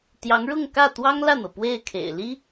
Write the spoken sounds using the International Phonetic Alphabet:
t̪ j ɑ˧˥ ŋ ɻ ʊ˥˧ ŋ k ä˥˩ t̪ w ɑ˥ ŋ l ä˥˩ n̪ ɤ˩ p w e˥˩ ɪ̯ kʰ ḛ˨˩ ɪ̯ l i˥

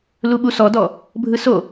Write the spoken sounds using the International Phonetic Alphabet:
l u ɓ u s ɔ d ɔ | bʱ ɯ s o

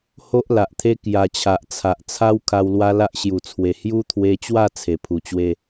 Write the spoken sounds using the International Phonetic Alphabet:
h o˦ ʔ l a˨ ʔ t̪ʰ e˦ k j a˧ t͡ɕʰ a˨ ʔ t͡sʰ a˨ ʔ t͡sʰ a˦ w kʰ a˧ w l w a˦ l a˦ ʔ ɕ j u˨˩ t͡sʰ w e˨˩ h j u˦ t̪ʰ w e˧ t͡ɕ w a˥˧ t͡sʰ e˨˩ pʰ u˨˩ t͡ɕ w e˥˧

